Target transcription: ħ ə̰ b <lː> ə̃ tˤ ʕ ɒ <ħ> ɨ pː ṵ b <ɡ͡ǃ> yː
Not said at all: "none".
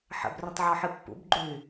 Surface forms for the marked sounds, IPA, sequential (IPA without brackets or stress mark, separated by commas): r, ħ, ɡ͡ǃ